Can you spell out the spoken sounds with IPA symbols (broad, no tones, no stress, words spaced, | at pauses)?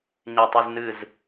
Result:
ɲetˤeznɨz